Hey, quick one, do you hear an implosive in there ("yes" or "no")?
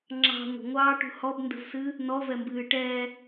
no